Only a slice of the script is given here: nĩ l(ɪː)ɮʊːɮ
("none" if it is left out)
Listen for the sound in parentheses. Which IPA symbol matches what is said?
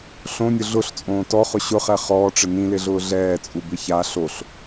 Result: ɪ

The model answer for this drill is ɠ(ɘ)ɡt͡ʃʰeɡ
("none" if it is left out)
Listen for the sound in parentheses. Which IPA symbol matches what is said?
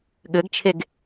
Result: ɘ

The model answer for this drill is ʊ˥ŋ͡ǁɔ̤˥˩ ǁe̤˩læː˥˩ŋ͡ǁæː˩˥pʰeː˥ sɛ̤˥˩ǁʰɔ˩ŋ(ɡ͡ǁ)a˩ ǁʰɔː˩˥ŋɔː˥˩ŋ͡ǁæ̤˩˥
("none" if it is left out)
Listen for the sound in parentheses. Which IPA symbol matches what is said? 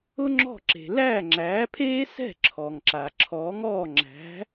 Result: ǁ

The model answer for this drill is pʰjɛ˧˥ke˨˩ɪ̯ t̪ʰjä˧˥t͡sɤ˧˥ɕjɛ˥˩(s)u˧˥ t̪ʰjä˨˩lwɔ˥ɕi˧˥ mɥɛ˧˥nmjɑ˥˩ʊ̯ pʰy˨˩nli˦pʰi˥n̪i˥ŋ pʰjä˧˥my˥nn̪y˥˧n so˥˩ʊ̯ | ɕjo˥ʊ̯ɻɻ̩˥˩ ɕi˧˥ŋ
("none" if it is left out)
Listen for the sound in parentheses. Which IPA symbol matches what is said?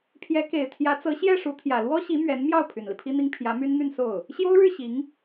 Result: ʂ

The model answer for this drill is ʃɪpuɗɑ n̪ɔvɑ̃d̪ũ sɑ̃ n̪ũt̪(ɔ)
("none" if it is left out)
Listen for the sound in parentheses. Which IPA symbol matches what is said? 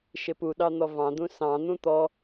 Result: ɔ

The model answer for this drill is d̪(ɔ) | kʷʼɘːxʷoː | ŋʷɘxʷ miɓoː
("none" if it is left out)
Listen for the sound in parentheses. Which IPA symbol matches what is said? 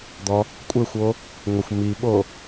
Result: ɔ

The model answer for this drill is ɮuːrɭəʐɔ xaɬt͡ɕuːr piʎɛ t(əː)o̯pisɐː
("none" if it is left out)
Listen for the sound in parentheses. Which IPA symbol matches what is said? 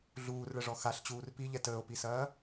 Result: əː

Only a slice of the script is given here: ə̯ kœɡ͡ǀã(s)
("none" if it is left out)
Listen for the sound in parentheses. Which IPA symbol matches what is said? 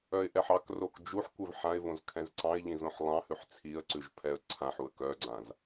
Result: z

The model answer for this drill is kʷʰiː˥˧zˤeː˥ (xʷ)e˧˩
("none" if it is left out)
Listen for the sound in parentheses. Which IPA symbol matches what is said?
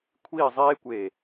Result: kʷ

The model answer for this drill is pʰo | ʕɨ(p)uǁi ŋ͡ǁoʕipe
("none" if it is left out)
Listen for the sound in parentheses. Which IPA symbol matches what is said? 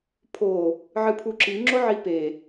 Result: pʰ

